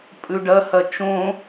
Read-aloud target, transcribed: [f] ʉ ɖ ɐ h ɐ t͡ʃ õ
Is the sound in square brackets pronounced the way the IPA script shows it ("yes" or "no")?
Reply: no